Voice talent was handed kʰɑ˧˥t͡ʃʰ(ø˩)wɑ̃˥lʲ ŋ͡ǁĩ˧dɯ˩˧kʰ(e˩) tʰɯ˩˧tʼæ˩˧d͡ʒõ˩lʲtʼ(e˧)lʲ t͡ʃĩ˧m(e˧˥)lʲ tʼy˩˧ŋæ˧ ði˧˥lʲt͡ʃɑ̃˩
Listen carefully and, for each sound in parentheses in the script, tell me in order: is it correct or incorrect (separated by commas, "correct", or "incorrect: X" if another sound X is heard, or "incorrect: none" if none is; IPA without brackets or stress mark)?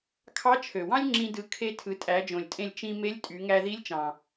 correct, incorrect: e˧, incorrect: ẽ˧, correct